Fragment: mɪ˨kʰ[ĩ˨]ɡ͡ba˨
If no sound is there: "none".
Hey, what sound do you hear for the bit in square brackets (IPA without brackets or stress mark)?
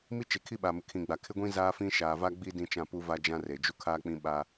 ĩ˨